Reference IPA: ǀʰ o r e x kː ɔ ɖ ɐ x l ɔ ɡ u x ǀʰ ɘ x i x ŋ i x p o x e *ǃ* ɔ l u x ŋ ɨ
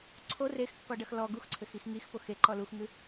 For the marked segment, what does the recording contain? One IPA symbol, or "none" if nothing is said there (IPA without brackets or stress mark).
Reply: ǃ